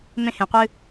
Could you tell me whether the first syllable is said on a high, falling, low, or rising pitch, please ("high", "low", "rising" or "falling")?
high